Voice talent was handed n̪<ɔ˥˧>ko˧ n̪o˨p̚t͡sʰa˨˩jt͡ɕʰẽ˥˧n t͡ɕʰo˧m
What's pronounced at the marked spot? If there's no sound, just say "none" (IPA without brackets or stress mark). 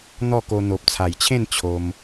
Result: ɔ˥˧